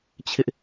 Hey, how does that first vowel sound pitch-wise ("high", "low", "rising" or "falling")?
high